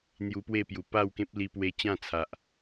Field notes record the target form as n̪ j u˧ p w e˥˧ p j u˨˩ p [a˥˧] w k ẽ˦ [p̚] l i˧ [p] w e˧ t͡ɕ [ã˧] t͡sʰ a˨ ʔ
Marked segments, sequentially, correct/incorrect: correct, correct, correct, incorrect: ã˥˧

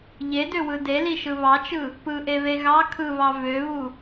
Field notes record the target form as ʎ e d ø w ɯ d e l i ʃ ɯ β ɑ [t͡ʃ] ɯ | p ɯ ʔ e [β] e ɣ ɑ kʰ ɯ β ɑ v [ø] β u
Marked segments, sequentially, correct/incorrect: correct, correct, correct

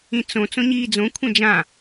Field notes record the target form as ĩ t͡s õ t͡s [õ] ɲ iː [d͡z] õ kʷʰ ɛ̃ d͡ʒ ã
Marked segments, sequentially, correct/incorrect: correct, correct

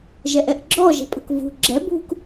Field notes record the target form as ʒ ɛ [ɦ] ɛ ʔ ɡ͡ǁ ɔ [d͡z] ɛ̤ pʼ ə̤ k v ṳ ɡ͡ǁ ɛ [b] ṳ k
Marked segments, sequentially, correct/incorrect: incorrect: ʔ, incorrect: ʒ, correct

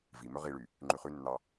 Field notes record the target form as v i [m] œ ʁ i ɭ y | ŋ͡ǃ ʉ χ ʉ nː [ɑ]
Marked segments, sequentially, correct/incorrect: correct, correct

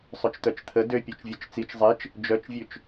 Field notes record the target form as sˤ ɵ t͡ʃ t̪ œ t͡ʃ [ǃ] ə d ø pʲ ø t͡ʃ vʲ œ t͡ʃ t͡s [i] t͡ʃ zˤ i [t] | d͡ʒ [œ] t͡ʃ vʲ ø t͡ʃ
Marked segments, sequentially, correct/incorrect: incorrect: t̪ʰ, correct, incorrect: t͡ʃ, correct

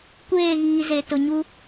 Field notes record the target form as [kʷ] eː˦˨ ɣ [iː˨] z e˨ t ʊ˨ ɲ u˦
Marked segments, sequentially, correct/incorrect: correct, correct

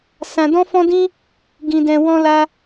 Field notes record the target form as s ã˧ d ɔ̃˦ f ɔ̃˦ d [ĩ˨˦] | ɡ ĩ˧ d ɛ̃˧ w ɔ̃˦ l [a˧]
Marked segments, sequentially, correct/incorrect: incorrect: ĩ˦, incorrect: a˦

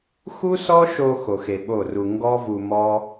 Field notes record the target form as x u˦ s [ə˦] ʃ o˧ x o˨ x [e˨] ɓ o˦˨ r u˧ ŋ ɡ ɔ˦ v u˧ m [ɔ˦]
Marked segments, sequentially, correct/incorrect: incorrect: ɔ˦, correct, correct

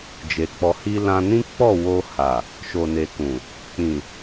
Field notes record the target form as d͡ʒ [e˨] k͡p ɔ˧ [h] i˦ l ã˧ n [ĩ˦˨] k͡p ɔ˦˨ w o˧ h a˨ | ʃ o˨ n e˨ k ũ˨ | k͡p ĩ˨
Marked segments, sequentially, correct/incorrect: correct, correct, incorrect: ĩ˦

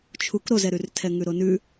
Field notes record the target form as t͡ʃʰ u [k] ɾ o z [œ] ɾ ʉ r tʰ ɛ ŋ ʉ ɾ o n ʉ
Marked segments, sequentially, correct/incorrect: correct, incorrect: ɛ

